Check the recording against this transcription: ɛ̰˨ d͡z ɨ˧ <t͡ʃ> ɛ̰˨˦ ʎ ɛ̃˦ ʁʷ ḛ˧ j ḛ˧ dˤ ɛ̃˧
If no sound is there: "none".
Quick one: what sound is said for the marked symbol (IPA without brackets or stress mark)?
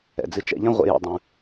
t͡ʃ